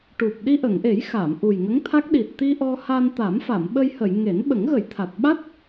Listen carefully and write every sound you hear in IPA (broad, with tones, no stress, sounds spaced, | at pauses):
ʈ u˨˩ p̚ ɗ i˧ ʔ ə˨˩˨ ŋ ʔ e˨˩˦ j x a˨˩˨ m ʔ u˨˩ j ŋ ə˧˥ ŋ t̪ʰ a˦˥ k̚ ɗ i˨˩ t̚ t̪ i˧ ʔ ɔ˧ h a˧ n t̪ a˨˩˦ m f a˨˩˨ m ɓ ə˧ j h ə˨˩˨ j ŋ e˨˩˦ n ɓ ə˨˩˦ ŋ ɣ ə˨˩˦ j t̪ʰ a˨˩ t̚ ɓ a˦˥ t̚